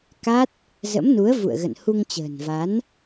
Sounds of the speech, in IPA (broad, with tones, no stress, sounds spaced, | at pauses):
k a˦˥ t̚ | z ə̰˧˥ m n u˨˦ ə̯ v ṵ˧˨ ə̯ ɣ ə̰˧˨ n h u˧ ŋ t͡ɕ ə̤ː˨˩ n v a˨˦ n